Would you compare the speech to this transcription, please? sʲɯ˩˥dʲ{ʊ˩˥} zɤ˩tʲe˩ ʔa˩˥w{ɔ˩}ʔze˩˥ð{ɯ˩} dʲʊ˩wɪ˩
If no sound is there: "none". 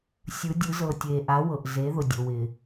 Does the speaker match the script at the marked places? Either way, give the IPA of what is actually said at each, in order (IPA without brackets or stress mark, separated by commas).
ɯ˩˥, ɤ˩, ʊ˩